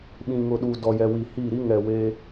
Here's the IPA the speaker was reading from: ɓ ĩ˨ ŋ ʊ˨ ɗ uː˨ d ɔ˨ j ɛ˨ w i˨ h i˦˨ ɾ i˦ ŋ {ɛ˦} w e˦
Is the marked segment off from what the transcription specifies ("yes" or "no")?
yes